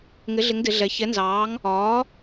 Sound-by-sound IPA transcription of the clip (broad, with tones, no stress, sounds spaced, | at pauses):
ŋ ɪ˩˥ ɮ ɪ˩˥ ŋ d ɪ˩˧ ɮ ɛ˩˧ ç ɛ˩˥ n z ɑː˩˥ ŋ | ɒː˩˥